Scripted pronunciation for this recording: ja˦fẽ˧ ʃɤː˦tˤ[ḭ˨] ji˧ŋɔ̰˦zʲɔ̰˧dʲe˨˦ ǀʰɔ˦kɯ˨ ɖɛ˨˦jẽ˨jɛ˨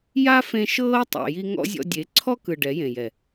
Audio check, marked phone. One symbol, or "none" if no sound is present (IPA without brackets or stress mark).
ḛ˨